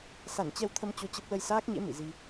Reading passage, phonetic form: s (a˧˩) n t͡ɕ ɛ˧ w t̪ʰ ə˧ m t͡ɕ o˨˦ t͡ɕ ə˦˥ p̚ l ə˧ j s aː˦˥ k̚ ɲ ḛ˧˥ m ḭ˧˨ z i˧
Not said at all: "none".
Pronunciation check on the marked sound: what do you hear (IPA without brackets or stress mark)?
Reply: a˧˩